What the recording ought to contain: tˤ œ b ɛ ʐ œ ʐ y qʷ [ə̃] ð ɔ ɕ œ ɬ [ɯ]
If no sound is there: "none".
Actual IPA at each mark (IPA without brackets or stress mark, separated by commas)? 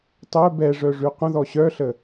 ə̃, ə